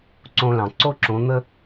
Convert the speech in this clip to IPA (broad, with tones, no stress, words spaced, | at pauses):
ǀõ˧lɑ̃˩ ǀo˧ǁõ˩˧n̪ə˧